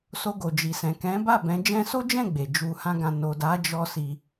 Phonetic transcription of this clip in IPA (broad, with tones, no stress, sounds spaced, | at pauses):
s o˧ ɡ o˨ d͡ʒ i˨ s ɛ̃˨ k ɛ̃˨˦ b a˦˨ b ɛ̃˨˦ d͡ʒ ɛ̃˧ s o˦ d͡ʒ ɛ̃˦˨ ɡ͡b e˨ d͡ʒ u˧ h ã˦ ɡ ã˧ n o˨ d a˨˦ d͡ʒ ɔ˧ s i˧